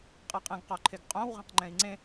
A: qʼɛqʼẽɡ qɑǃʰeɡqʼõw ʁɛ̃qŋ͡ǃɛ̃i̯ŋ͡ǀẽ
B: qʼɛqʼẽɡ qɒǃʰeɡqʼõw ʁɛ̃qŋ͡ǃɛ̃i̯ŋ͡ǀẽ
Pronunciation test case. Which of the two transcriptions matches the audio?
B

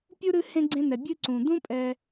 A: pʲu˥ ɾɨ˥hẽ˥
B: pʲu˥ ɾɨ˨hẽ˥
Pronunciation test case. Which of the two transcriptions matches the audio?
A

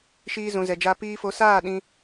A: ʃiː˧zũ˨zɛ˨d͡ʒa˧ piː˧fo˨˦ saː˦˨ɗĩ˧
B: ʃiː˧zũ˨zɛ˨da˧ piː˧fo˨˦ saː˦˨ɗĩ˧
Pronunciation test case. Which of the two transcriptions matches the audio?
A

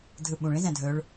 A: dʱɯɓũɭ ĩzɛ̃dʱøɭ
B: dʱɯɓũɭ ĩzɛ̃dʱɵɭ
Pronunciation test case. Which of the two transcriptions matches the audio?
B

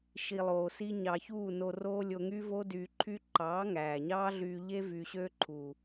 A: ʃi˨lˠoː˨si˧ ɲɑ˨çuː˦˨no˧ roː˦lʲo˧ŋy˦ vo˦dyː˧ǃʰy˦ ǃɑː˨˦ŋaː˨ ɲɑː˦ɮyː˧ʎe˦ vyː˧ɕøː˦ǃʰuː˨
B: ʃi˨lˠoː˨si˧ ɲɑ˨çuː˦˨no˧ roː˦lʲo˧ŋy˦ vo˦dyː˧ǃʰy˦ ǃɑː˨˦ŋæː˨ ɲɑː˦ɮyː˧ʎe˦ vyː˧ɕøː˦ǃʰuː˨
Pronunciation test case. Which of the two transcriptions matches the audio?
B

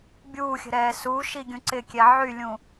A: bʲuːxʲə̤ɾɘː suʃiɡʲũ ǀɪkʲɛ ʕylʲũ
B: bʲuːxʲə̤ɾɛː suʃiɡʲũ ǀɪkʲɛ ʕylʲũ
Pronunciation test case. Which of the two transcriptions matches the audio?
B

